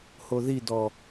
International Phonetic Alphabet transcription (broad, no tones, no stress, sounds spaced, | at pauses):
h o ð i d ɔ